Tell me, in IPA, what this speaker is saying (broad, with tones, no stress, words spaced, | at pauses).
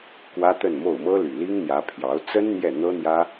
kwä˥t̪ə˥˧nmo˥˩ʊ̯ mɤ˥ly˨˩li˥ŋn̪jä˧˥ pʰjɑ˧˥ʊ̯ t͡sə˥n n̪jɛ˥˩n̪ɤ˥n̪jä˥